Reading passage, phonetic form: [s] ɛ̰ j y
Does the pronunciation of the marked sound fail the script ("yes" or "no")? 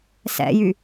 no